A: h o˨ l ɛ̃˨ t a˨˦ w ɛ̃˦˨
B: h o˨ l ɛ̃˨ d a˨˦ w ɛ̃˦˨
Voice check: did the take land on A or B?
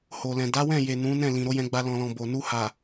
B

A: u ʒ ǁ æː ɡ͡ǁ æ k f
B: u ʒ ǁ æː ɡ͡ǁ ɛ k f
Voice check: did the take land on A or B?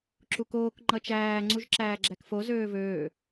A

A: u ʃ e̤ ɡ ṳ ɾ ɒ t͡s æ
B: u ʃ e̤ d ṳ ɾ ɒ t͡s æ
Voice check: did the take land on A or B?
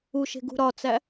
A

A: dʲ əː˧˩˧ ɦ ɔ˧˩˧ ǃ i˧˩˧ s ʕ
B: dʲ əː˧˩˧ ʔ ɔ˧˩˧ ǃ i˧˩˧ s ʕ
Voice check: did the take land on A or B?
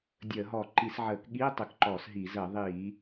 A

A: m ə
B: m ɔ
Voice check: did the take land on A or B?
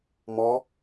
B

